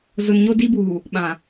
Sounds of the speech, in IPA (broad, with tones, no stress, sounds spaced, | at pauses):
z ʊ˨ n ɲ o˦ d i˦ b uː˨ | ɓ ã˨